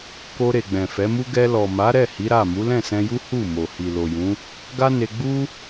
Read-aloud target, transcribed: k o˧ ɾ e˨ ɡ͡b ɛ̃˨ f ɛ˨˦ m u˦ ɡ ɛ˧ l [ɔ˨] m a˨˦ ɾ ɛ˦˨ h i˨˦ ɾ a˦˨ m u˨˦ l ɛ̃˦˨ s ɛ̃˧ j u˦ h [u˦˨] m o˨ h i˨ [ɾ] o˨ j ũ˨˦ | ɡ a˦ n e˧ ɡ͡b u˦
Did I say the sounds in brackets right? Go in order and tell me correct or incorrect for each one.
correct, correct, incorrect

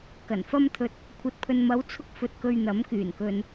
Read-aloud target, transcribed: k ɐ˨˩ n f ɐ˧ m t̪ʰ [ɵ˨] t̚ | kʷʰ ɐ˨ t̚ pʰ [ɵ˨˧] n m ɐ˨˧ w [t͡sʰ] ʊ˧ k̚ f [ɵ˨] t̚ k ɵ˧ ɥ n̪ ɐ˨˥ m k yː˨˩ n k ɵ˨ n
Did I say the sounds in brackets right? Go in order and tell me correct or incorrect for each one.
correct, incorrect, correct, incorrect

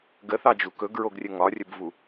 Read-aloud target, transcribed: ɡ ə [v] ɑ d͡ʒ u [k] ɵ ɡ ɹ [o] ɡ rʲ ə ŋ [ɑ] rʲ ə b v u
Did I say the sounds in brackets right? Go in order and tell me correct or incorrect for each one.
incorrect, correct, correct, incorrect

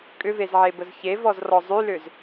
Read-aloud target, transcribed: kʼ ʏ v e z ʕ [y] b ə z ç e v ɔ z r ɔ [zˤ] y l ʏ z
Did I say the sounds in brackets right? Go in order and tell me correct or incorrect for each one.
incorrect, correct

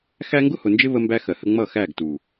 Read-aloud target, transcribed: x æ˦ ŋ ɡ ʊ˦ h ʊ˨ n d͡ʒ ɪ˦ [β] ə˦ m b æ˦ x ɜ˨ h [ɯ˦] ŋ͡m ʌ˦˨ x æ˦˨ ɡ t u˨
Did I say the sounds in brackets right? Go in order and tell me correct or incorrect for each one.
correct, incorrect

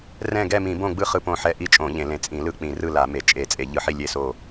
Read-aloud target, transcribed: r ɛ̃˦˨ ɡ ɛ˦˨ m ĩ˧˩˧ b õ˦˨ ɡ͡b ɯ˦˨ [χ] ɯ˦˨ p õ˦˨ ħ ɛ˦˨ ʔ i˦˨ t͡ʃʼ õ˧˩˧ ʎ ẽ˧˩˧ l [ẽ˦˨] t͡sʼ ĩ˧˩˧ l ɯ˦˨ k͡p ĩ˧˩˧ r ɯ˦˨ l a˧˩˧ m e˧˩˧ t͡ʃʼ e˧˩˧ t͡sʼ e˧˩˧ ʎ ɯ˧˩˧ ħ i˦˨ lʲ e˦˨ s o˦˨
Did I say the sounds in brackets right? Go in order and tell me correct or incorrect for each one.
correct, incorrect

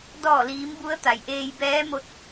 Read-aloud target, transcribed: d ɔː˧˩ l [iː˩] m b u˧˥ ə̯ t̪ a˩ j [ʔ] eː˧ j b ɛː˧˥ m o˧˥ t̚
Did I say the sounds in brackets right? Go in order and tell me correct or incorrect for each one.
incorrect, correct

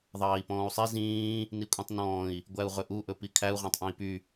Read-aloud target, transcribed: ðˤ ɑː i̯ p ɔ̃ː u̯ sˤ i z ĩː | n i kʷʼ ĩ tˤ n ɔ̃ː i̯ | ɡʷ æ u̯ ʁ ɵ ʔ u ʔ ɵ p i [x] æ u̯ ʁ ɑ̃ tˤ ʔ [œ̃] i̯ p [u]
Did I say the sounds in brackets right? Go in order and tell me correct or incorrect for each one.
incorrect, correct, incorrect

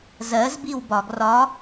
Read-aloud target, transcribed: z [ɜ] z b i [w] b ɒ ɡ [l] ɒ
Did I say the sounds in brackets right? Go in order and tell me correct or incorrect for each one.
correct, correct, incorrect

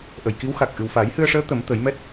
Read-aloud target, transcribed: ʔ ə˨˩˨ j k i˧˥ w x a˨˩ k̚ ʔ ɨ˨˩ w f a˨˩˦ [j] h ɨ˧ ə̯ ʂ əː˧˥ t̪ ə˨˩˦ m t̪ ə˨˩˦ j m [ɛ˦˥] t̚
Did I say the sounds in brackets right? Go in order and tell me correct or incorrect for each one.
correct, correct

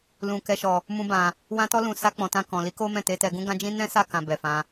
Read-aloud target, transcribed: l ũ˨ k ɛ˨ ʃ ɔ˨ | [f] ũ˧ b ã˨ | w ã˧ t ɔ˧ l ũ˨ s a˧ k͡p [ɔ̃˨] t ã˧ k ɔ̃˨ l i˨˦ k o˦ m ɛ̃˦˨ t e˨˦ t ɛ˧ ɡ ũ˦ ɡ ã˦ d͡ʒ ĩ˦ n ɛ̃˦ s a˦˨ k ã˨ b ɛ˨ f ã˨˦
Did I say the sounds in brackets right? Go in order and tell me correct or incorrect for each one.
incorrect, correct

